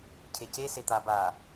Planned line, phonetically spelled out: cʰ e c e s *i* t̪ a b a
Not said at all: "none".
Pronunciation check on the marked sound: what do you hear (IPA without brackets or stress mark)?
e